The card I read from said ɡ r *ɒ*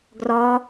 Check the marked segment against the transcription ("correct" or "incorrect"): correct